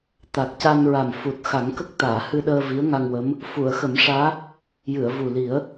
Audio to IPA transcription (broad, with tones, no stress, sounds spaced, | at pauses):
t̪ a˨˩ k̚ c a˧ n ɹ a˨˩ m f u˨˩ t̚ x a˨˩˦ ŋ k ə˦˥ k̚ t̪ aː˨˩˨ h ɨ˧ ɗ əː˧ v i˧˥ ə̯ ŋ a˧ ŋ w ə˧˥ m | f u˨˩˨ ə̯ x ə˨˩˦ m ʂ aː˧˥ | j ɨ˨˩˨ ə̯ v u˨˩ l i˨˩˦ ə̯